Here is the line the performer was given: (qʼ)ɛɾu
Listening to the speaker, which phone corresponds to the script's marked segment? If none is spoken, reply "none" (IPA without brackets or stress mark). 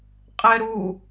qʼ